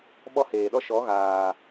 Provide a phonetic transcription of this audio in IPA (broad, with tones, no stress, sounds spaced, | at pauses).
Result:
ɓ ɔ˦ h eː˨ ɗ ɔ˦ ʃ ɔ˨˦ ɣ aː˨